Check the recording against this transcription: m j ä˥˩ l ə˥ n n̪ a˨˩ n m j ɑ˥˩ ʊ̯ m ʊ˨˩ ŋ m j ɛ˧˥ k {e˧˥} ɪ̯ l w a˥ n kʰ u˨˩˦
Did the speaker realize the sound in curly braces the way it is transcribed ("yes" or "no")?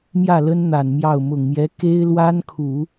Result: no